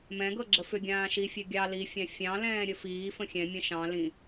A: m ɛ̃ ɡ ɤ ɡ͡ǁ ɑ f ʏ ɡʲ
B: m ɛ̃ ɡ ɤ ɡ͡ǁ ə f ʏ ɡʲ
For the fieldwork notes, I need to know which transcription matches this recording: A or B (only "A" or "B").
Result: B